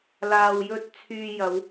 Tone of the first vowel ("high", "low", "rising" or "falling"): low